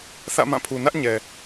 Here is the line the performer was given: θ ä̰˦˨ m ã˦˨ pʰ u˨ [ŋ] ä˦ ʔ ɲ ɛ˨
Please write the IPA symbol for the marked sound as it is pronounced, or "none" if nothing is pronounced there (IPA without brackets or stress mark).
n